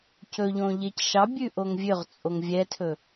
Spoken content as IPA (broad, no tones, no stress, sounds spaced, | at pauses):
c ɵ ʎ õ ʎ e c ʃ ɑ bʲ ʉ ʔ o ŋ vʲ ø ʁ t͡sʼ o ŋ vʲ ɛ tʰ ɵ